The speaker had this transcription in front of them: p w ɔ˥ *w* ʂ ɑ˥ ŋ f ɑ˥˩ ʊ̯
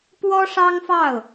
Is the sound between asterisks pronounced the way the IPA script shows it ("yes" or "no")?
no